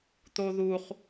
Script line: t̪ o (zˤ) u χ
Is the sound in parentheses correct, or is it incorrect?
incorrect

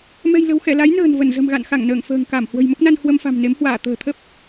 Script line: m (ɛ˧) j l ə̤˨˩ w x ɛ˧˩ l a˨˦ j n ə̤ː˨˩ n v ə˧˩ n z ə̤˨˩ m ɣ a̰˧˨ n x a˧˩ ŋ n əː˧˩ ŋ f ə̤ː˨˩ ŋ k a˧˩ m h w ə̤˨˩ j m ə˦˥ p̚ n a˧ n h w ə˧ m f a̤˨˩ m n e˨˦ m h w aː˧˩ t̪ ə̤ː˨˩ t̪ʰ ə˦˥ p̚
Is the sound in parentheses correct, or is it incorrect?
incorrect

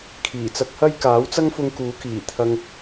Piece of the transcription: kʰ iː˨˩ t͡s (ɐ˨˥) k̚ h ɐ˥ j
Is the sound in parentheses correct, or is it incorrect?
incorrect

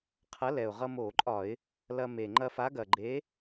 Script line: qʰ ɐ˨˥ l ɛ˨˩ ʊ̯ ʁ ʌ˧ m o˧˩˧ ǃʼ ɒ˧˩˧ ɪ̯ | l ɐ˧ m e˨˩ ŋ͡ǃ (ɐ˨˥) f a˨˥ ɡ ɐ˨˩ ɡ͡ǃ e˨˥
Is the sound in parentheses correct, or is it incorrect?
incorrect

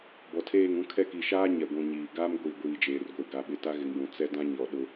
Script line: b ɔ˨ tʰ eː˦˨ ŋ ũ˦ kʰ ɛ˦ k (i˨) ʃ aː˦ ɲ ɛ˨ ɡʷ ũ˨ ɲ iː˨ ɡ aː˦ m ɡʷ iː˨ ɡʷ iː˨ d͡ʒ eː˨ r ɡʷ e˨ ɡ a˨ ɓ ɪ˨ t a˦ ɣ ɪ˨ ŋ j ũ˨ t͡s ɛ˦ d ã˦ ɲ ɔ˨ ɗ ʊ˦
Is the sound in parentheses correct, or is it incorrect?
correct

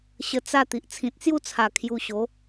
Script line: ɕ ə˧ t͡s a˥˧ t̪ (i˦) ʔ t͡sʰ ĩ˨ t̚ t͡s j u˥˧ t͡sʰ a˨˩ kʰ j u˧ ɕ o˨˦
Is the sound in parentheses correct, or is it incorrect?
incorrect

